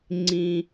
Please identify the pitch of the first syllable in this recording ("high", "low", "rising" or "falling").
high